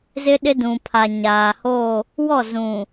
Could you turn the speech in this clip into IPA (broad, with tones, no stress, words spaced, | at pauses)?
zɪ˦ɗɪ˦ dũ˨pʰa˨ ɲaː˨ho˦˨ | wɔ˦˨zũ˨